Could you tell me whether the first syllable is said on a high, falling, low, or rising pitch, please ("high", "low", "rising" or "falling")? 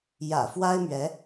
low